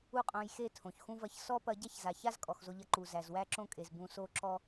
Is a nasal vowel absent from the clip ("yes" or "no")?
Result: no